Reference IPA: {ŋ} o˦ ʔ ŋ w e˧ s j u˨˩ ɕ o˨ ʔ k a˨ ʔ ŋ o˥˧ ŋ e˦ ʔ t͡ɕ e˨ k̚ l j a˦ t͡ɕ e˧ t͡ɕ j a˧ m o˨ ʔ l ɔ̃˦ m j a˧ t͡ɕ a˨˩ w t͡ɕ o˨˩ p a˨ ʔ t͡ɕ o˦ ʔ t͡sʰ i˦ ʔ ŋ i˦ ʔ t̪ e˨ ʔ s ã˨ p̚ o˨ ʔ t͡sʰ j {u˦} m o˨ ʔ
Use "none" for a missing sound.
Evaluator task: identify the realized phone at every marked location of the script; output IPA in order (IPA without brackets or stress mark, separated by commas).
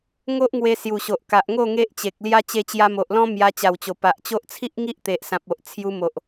ŋ, u˧